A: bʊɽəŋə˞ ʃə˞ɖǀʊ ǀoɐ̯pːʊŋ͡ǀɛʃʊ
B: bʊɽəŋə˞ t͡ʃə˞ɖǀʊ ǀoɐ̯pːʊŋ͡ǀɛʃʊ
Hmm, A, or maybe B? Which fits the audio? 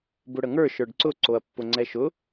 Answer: A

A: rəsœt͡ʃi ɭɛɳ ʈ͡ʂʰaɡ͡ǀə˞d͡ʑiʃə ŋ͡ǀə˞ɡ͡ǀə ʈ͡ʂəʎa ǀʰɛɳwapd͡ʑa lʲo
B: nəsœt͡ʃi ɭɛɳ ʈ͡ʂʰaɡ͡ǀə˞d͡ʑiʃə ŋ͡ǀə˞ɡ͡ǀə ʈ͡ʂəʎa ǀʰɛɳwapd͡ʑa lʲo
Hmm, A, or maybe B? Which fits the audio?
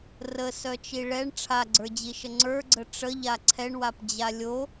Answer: A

